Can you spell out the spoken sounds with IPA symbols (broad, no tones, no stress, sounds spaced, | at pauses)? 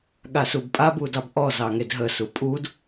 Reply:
ɠ a s u b pʼ a b u d ɑ b ʔ ɔ z ɑ ŋ e d ɦ ə s u pʼ u d